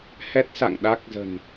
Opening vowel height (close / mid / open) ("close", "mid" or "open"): mid